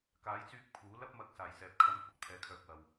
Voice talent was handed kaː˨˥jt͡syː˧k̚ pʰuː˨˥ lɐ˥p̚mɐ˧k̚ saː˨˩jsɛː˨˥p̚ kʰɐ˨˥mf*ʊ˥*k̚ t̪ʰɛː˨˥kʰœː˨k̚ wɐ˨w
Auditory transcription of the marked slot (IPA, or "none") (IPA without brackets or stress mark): ʊ˨